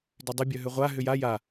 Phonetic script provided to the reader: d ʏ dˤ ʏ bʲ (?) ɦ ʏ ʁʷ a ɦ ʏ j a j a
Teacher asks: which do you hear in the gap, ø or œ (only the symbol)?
œ